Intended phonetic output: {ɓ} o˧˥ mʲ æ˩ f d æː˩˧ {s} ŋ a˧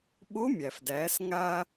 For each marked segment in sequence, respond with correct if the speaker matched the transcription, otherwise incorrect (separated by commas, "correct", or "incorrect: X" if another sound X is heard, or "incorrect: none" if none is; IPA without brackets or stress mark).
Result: correct, correct